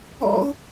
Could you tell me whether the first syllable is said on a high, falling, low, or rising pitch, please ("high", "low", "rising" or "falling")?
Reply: high